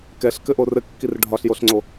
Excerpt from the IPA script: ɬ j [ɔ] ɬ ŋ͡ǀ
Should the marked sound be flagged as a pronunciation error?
yes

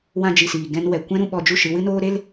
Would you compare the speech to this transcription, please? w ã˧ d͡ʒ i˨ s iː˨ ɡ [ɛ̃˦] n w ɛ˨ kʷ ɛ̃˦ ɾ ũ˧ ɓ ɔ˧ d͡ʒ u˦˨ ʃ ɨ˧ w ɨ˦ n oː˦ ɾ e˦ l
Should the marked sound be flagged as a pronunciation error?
yes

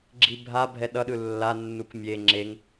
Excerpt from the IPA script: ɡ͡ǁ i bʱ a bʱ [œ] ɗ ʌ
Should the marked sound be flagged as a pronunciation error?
yes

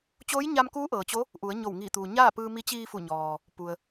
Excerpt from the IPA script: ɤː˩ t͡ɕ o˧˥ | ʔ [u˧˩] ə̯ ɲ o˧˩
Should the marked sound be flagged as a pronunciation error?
yes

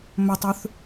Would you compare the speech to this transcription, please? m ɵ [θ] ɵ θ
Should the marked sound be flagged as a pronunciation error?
yes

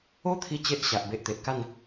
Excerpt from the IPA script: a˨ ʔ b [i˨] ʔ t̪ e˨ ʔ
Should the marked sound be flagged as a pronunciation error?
yes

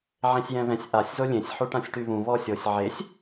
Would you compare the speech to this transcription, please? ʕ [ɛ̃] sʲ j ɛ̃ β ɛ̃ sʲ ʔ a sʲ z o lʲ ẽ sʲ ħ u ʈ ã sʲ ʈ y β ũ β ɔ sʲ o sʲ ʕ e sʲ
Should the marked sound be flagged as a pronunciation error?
yes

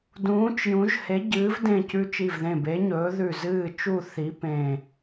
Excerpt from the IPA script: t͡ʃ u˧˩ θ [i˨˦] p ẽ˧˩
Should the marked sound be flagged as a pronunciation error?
no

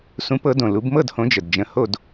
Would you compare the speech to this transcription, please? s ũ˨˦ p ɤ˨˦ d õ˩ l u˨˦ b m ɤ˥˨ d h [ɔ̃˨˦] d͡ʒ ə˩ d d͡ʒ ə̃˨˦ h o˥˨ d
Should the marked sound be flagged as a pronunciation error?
yes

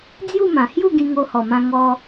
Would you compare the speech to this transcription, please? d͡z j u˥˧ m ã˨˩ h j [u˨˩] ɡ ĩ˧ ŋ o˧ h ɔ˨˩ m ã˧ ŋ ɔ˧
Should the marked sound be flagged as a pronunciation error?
yes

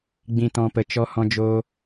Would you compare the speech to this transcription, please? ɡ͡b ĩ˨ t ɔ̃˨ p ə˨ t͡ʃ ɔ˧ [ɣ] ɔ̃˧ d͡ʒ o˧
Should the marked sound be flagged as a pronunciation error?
yes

